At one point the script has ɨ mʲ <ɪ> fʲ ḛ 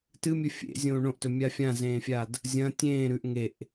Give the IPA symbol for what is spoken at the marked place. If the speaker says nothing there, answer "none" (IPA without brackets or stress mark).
ɨ